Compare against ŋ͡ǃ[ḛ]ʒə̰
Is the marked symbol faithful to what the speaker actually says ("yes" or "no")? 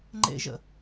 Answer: yes